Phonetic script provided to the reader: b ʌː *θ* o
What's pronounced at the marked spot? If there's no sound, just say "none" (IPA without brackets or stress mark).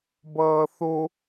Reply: θ